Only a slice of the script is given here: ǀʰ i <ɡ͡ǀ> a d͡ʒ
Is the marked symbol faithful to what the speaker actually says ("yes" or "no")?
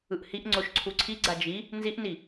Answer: yes